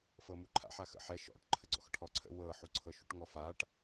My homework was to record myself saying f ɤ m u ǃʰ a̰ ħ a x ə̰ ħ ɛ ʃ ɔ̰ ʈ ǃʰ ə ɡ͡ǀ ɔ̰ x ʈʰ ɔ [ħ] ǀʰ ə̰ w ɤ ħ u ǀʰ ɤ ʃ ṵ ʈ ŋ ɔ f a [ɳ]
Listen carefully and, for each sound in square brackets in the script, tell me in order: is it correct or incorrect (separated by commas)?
incorrect, incorrect